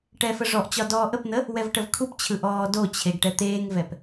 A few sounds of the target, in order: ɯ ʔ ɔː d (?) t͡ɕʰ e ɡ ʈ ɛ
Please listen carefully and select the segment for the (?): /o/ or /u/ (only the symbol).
o